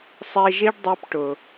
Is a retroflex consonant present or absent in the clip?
present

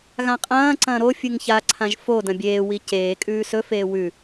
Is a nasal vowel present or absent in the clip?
present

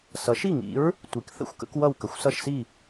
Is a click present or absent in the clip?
absent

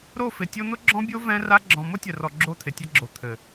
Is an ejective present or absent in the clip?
absent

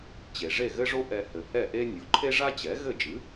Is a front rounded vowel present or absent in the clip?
absent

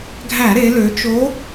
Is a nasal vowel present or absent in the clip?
absent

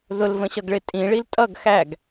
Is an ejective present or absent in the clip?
present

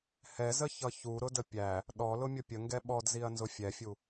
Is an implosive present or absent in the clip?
present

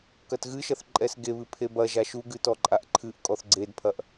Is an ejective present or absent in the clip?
present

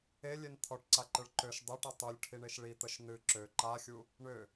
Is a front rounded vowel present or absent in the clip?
present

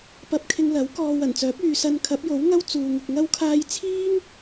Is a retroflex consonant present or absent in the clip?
absent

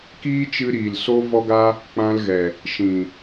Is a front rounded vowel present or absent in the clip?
absent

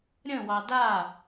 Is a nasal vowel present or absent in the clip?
present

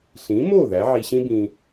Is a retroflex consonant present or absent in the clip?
absent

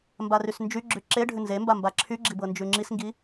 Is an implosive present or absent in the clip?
absent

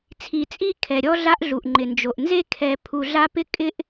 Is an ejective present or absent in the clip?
present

